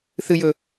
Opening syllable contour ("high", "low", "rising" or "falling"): low